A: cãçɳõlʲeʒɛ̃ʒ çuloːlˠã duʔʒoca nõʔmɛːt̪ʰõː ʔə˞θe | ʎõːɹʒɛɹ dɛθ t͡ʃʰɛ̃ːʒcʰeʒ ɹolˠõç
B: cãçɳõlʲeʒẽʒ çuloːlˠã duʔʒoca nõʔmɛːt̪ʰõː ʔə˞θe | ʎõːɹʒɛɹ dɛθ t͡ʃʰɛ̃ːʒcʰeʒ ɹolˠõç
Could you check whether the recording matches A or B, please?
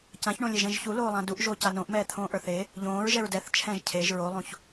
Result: A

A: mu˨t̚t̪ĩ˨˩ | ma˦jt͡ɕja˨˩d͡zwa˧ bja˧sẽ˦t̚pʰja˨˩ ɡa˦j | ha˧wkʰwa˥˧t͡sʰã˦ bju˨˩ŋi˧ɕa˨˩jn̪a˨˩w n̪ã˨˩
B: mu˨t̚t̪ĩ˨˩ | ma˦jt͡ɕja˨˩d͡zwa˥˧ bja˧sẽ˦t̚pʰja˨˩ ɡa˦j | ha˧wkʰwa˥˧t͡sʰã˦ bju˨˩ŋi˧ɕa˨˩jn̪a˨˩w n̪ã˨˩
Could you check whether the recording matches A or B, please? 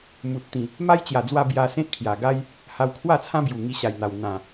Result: A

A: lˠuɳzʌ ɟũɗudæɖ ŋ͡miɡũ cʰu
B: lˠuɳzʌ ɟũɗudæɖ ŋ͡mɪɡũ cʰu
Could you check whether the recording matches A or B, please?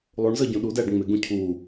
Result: B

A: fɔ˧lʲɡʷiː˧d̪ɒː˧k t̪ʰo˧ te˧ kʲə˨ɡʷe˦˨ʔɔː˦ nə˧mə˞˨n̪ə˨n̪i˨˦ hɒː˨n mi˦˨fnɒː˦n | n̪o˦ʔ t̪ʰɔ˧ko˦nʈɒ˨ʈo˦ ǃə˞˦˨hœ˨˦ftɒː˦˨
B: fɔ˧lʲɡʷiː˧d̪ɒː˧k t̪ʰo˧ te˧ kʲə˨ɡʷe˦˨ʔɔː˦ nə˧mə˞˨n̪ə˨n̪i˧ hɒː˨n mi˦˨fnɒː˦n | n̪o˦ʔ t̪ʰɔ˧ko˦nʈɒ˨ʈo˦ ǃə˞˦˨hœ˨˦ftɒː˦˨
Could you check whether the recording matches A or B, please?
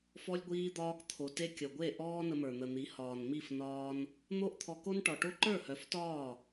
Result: A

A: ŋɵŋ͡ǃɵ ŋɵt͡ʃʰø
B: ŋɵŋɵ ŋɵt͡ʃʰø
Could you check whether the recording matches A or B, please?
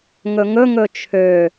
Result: B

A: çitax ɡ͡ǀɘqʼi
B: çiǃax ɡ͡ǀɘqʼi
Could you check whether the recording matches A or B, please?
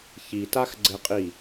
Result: A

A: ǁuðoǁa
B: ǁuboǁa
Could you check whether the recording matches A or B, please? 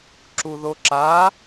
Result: A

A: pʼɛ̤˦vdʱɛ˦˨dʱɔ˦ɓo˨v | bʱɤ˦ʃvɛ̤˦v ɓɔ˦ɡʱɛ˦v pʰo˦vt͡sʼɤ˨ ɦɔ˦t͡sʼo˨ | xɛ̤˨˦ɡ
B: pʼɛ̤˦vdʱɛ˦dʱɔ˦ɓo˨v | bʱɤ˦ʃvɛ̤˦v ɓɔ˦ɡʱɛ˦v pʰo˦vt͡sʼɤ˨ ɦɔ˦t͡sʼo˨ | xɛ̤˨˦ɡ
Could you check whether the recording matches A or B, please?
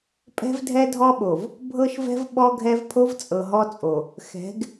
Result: B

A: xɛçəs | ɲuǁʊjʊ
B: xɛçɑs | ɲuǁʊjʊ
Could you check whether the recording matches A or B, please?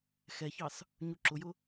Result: B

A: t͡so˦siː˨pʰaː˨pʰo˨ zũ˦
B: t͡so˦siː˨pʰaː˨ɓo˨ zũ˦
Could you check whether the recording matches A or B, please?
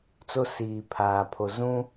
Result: A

